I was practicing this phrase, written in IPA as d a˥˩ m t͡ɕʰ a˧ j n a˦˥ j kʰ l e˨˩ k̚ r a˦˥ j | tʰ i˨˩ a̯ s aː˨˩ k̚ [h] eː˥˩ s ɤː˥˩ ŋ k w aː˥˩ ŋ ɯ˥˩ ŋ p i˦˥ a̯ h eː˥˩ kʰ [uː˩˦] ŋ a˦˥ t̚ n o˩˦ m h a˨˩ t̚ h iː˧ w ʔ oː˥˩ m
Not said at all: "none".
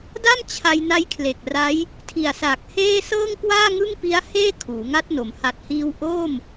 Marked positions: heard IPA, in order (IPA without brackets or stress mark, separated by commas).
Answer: h, uː˩˦